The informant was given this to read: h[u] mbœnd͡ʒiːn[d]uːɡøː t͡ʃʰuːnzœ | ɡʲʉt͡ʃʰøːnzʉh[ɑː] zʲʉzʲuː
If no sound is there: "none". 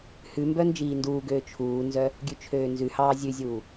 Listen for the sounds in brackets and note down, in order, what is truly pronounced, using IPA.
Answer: ʉ, d, ɑː

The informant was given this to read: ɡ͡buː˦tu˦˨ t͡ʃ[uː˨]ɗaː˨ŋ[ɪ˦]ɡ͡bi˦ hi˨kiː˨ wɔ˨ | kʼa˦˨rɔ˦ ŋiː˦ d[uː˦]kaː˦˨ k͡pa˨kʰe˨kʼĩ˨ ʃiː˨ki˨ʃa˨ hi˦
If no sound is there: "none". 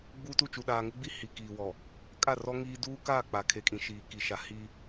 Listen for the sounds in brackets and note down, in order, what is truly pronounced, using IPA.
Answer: u˨, ɪ˦, uː˦

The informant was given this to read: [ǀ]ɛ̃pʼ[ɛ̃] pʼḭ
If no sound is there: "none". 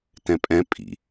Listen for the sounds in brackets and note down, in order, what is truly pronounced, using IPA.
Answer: t, ɛ̃

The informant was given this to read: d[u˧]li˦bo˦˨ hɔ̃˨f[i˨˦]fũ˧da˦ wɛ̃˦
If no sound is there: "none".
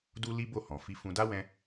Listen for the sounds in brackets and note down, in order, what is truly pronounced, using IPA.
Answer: u˦, i˧

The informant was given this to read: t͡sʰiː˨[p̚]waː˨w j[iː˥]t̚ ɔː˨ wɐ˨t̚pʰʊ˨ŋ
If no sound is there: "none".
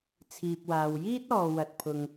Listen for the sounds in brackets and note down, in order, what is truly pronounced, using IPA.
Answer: p̚, iː˥

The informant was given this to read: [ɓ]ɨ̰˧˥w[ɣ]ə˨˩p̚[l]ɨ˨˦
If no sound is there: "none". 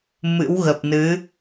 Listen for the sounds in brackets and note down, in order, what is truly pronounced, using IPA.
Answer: m, ɣ, n

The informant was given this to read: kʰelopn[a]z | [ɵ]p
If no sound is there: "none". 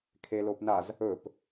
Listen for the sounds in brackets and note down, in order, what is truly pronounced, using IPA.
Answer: a, ɵ

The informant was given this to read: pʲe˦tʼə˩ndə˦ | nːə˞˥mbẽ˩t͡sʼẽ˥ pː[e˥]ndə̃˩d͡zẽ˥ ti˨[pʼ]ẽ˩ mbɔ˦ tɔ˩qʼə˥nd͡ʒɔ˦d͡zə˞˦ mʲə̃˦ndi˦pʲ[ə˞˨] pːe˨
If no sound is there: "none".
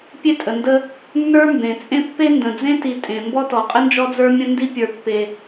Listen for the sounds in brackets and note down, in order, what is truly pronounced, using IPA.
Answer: e˥, tʼ, ə˞˨

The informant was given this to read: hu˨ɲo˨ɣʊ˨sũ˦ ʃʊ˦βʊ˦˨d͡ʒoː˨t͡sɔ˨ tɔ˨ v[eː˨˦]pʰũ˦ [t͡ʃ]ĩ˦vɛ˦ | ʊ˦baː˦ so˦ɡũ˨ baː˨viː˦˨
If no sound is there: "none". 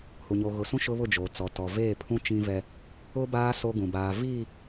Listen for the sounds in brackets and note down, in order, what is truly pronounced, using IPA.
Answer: eː˦˨, t͡ʃ

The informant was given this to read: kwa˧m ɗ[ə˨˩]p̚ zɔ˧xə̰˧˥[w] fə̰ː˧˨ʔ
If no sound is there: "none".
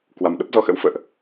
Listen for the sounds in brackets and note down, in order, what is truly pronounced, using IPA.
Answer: ə˦˥, w

